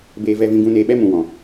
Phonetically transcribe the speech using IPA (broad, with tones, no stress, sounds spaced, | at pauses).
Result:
b eː˧ v ɛ˧ v ĩ˧ ɡ ũ˧ n eː˧ ɓ ɛ˦ m ũ˨ w ɔ̃˨